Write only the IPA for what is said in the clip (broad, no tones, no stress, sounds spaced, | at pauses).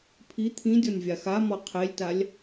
pʰ i t̪ʰ ĩ dʲ ɔ nʲ vʲ a x a m ɔ qʰ e lʲ t a lʲ